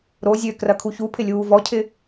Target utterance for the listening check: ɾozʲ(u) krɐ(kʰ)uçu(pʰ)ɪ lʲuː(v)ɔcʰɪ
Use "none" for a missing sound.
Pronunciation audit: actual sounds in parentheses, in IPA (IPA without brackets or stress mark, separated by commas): ø, kʰ, pʰ, v